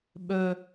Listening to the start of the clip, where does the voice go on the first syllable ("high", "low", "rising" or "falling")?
high